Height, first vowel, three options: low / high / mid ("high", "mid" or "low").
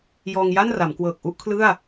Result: mid